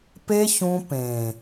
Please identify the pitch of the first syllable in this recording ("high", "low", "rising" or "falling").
high